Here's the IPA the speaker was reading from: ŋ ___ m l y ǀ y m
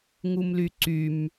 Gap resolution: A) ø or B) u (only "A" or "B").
B